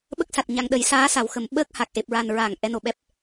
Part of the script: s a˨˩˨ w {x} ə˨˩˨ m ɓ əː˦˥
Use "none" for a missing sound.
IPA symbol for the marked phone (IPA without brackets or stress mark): x